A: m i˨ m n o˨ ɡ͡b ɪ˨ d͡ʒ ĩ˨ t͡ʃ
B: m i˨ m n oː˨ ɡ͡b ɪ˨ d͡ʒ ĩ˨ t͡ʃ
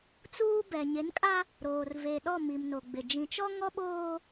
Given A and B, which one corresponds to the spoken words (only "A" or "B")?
A